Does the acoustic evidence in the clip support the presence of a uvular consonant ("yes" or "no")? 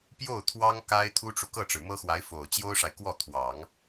no